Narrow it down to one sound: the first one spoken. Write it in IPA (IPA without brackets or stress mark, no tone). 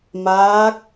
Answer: m